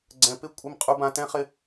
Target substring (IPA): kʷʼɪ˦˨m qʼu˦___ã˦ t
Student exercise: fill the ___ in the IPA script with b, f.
b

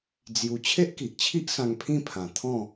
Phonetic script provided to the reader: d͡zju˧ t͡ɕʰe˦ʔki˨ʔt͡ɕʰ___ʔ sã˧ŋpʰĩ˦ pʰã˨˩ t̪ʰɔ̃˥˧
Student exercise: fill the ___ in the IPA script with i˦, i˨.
i˦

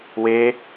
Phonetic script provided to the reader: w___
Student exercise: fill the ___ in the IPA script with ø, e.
e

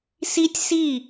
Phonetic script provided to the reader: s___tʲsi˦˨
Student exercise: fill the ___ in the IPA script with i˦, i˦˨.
i˦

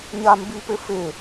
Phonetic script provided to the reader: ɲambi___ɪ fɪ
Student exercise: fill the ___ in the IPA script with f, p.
p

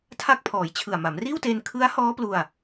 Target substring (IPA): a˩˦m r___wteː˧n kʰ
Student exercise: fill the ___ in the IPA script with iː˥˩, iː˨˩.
iː˥˩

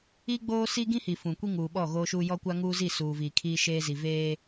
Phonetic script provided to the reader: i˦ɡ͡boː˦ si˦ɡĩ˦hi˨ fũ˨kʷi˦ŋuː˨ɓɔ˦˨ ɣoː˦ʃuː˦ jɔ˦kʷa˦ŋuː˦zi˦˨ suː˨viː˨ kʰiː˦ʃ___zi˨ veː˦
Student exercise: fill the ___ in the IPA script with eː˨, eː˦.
eː˦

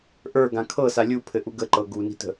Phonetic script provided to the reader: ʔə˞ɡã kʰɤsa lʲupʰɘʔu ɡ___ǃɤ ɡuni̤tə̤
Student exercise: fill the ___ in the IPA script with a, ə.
ə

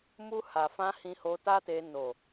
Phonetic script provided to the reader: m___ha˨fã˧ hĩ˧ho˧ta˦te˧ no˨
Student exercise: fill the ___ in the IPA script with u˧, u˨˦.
u˧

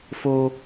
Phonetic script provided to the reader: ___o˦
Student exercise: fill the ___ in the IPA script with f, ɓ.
f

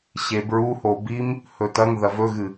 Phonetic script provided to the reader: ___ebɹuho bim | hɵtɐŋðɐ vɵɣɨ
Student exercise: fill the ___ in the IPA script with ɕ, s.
ɕ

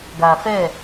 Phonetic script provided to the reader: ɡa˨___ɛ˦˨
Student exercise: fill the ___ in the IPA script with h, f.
f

